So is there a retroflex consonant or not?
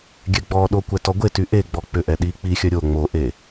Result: no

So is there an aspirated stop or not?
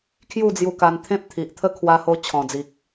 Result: yes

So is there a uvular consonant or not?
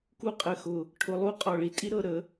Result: yes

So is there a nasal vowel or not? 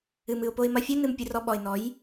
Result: no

